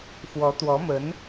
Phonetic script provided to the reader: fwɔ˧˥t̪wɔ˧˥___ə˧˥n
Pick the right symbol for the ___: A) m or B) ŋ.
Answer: A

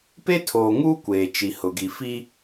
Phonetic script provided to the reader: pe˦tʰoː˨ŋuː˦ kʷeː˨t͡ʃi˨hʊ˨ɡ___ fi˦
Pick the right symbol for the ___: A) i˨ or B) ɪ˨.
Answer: A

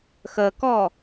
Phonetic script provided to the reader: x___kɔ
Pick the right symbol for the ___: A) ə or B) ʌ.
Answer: A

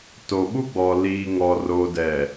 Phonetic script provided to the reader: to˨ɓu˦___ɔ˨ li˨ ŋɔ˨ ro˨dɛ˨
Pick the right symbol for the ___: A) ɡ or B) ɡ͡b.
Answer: B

